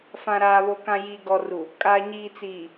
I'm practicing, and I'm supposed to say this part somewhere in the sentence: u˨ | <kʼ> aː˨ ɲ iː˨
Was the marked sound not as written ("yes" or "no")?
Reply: no